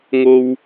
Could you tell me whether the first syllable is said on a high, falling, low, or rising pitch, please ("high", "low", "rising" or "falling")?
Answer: high